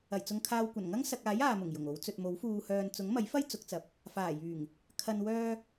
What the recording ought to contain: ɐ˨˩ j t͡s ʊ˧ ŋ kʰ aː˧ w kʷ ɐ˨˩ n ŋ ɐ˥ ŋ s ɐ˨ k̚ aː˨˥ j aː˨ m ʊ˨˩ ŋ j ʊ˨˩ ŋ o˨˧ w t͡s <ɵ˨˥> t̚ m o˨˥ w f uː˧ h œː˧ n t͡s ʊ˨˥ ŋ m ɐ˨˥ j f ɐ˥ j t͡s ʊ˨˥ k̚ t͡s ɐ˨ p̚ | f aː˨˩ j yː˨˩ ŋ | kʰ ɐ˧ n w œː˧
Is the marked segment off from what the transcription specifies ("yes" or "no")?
yes